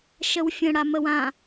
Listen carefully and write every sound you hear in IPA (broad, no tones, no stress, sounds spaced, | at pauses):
ʃ ə w fʲ ə̃ ɽ a m ə w ã